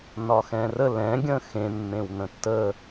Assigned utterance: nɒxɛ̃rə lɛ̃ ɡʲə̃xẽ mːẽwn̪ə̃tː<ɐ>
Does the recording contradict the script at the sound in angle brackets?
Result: yes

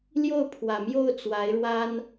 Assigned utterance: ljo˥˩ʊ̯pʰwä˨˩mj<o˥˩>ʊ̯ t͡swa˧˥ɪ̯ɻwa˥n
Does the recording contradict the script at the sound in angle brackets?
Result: no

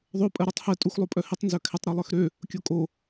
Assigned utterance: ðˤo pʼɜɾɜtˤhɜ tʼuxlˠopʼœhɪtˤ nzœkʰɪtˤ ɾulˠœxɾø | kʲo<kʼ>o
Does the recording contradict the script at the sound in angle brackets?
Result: no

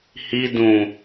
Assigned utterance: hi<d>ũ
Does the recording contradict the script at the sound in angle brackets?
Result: no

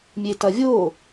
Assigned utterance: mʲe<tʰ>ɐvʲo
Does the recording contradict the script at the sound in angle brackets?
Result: yes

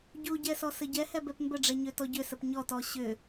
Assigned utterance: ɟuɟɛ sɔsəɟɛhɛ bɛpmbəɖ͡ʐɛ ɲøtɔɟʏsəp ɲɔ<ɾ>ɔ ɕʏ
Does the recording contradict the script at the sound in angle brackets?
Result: yes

